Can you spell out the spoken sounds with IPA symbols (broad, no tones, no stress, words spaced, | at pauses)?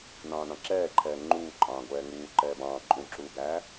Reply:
nɑ̃ːnɑ̃ǁɛːǃʰɛː ŋ͡ǃuːǃʼɑ̃ːɡʷɛː ŋuː ǃɛːbɑ̃ː ǃʼũǁuːɡæː